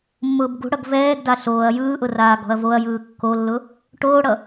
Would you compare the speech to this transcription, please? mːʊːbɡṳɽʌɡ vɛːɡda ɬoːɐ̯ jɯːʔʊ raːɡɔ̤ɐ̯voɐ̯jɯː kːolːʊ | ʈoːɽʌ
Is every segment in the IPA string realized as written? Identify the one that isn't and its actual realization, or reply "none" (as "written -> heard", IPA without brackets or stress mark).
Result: none